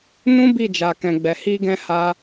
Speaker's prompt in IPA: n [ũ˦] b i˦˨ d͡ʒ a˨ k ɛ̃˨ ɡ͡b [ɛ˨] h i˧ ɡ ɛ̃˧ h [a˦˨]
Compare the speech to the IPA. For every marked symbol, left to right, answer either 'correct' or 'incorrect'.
correct, correct, incorrect

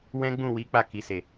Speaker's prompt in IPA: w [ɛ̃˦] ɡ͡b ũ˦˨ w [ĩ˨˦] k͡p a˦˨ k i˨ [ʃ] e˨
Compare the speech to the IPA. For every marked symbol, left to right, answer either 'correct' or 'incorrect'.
correct, incorrect, incorrect

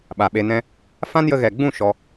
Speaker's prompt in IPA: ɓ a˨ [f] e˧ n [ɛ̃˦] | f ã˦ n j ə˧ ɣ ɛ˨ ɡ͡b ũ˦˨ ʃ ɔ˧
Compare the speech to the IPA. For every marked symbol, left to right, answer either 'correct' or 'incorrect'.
incorrect, correct

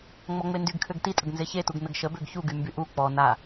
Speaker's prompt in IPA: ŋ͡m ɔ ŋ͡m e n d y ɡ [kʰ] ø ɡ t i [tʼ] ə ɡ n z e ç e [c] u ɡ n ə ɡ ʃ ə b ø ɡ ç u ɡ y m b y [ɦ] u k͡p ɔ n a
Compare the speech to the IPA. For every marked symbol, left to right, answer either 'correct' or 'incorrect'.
correct, correct, incorrect, incorrect

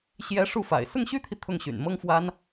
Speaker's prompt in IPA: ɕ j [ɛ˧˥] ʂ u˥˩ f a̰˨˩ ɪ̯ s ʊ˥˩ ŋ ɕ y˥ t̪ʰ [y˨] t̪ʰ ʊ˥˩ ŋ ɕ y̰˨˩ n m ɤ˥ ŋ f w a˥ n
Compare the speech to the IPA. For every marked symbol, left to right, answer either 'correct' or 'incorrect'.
correct, incorrect

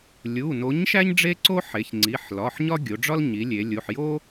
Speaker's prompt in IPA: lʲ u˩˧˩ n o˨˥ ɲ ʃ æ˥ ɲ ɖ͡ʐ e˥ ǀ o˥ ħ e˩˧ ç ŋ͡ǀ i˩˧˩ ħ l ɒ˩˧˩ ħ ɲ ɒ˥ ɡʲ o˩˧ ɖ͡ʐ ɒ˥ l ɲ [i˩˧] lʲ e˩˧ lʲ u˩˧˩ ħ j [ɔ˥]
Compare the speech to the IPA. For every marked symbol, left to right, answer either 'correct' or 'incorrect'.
correct, incorrect

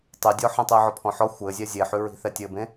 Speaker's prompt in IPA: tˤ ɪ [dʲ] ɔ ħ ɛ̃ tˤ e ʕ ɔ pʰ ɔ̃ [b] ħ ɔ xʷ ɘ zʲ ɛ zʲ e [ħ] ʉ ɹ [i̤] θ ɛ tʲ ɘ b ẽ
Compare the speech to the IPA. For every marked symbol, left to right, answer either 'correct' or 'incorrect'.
correct, incorrect, correct, correct

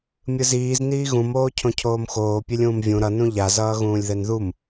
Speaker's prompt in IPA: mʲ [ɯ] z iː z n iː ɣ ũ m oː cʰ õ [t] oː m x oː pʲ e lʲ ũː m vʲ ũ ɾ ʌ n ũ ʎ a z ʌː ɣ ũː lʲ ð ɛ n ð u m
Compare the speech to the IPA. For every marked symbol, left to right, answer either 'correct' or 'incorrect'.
correct, incorrect

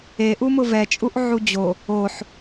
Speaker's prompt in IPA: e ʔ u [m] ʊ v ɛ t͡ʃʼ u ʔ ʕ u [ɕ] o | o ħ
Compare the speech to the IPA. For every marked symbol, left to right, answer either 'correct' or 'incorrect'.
correct, incorrect

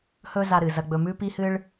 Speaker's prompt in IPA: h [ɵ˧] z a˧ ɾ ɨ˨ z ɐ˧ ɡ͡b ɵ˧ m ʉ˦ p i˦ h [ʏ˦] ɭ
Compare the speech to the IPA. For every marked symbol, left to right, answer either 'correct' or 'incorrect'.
incorrect, incorrect

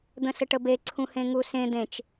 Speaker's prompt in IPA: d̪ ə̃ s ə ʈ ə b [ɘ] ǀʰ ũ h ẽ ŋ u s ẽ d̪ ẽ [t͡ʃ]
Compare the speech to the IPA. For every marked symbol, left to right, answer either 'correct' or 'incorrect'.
incorrect, correct

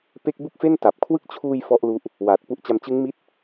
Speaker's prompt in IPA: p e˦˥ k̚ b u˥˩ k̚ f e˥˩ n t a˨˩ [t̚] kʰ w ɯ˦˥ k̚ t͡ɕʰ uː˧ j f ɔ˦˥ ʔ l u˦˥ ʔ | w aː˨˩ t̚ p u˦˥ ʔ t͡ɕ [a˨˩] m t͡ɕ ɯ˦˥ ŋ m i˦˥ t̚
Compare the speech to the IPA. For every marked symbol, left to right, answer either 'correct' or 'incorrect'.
incorrect, incorrect

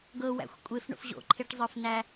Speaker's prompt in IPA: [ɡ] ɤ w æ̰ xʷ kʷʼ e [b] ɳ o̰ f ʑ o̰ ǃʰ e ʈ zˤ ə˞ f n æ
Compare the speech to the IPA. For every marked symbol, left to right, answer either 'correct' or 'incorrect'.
correct, incorrect

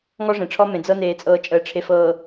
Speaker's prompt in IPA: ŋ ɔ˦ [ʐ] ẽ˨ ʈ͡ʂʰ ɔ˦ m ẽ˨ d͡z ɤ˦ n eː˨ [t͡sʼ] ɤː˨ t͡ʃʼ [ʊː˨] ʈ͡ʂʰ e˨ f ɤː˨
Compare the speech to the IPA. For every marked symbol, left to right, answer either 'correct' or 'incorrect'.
correct, correct, incorrect

